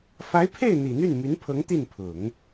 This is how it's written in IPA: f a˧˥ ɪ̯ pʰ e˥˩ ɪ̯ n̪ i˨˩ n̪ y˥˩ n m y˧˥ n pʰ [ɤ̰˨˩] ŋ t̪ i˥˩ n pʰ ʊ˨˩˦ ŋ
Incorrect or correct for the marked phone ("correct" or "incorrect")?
incorrect